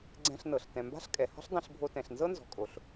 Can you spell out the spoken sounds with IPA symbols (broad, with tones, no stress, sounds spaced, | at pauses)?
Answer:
ɡ͡ǀ ɛ̃˧ ɬ n ɤ˩ ɬ t ɛ̃˩ m b a̤˥ ɬ kʼ ɛ˩ h ɔ̤˥ ɬ dˤ ẽ˧ ɬ bʱ o˧ t ɛ̃˩ ɬ n z ɤ˥ n z ɔ̤˩ kʼ o˩ ɬ